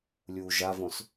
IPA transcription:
lʲ uː ʒ a v õ s

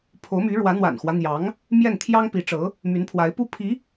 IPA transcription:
pʰ o˧˥ ʊ̯ m y˧˥ ɻ w ä˧˥ n̪ w a̰˨˩ n x w ä˦ n̪ j ɑ˧˥ ŋ | m j ɛ˥˩ n t̪ʰ j ɑ˥ ŋ p i˧˥ ʈ͡ʂ ɤ˧˥ | m y˧˥ n pʰ w a˧˥ ɪ̯ p u˥ pʰ i˧˥

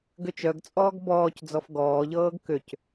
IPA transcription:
ɡ ʏ t͡ʃ œ ɡ t͡sʼ ɔː ɡ b ɔː c d͡z ɔ f ɡ ɔː ʎ ɤː ɡ k ʏ c

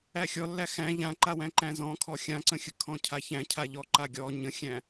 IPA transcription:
æ xʲ ɔ lː æ x æ̃ ʎ ã ǃ a w æ̃ ǃ æ̃ z ɔ̃ kʰ ɔ xʲ ã ǀ ə̃ xʲ ə kʰ ɔ̃ cʰ a ç æ̃ cʰ a ʎ ɔ ǃ a ɡʲ ɔ ɲ ə̃ xʲ æ̃

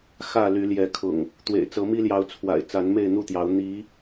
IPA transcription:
x ä˥˨ l y˨˦ l j ɛ˨˦ kʰ ʊ̰˨˩ ŋ | t̪ w ḛ˨˩ ɪ̯ t͡s ɤ˨˦ m i˦ l j ɑ˨˦ ʊ̯ t͡sʰ w a̰˨˩ ɪ̯ t͡s a˨˦ n m e˥˨ ɪ̯ n̪ u˥˨ t̪ j ɑ˨˦ ʊ̯ n̪ i˨˦

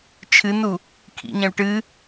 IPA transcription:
t͡ʃʰ ɨ n u | kʰ ḭ ɲ ɐ̃ u̯ ʈ ɨ

